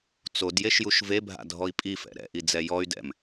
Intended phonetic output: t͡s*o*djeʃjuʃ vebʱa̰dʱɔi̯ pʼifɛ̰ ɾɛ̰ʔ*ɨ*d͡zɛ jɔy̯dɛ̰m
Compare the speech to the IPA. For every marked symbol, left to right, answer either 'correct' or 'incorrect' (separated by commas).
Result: correct, incorrect